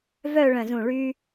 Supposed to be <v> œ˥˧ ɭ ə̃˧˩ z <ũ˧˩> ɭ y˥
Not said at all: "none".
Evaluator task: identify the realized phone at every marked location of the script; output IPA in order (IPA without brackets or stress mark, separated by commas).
v, ũ˧˩